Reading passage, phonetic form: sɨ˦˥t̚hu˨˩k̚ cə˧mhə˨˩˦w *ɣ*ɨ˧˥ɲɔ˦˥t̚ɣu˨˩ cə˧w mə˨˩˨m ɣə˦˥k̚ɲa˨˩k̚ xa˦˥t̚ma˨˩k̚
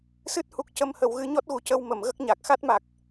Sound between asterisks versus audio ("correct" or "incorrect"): correct